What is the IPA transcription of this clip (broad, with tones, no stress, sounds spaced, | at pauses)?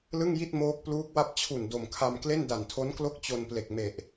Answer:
l ɯ˥˩ ŋ j i˥˩ t̚ m oː˦˥ k̚ p l uː˦˥ k̚ w a˥˩ p̚ t͡ɕʰ u˨˩ n d o˨˩ m kʰ a˧ m k l e˥˩ n d a˨˩ n tʰ o˦˥ n k l o˥˩ k̚ t͡ɕ o˧ n p l e˨˩ k̚ m e˨˩ ʔ